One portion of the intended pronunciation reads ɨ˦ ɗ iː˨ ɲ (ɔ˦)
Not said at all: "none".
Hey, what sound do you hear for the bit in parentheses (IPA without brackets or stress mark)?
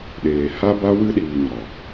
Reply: ɔ˨